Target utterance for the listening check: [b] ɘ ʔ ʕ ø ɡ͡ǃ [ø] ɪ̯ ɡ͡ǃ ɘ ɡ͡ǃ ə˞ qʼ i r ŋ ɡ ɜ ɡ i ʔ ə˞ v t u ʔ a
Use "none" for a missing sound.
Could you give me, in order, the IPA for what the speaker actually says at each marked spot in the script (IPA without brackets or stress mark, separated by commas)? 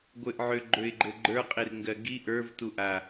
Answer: ɡʷ, ø